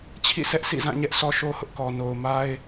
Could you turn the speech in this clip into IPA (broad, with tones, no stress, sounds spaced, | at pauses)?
t͡ɕʰ ḭ˦˨ sʰ ɛ˦ ʔ sʰ ḭ˦˨ z ã˦˨ ɲ ɛ˦ ʔ sʰ ɔ˦ ʃ o˦ h ʊ˦ ʔ k ɔ˨ n o˨ ʊ̯ m a˦ ɪ̯